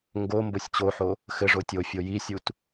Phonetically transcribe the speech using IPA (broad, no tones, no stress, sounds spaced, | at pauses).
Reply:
ŋ ɡ o m b o sʲ t͡ɕ o ħ o | x ɘ ʐ o tʲ o fʲ o j i sʲ u t